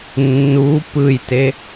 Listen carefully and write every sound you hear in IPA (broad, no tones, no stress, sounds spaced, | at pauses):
nː u p ɯ j t e